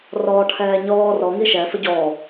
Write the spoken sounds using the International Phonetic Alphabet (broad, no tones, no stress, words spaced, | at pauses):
rɔːʈʰɛːɲɔː rɔ ŋiʃɛ fəɟɔː